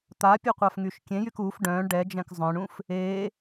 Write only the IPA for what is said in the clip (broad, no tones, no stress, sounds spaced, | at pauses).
t̪ a pʲ e qʷ a f ŋ y ʃ kʲ ẽ j y k u f ɖ œ̃ː ɳ ɖ ɛ d͡ʒ ɛ̃ k zˤ œ̃ ɳ ũ f | eː